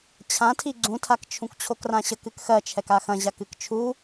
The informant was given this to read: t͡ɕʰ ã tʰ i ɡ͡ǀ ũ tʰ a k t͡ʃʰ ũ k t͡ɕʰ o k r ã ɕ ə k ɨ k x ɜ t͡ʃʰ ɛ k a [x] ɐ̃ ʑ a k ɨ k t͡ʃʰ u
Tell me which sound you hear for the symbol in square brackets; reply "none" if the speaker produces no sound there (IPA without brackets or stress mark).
x